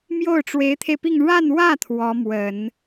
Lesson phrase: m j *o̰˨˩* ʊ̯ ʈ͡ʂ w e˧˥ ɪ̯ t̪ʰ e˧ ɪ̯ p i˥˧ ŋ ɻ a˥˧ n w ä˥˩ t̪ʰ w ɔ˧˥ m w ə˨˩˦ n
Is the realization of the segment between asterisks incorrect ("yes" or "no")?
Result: yes